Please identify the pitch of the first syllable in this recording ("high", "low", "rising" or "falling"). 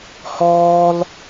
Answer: high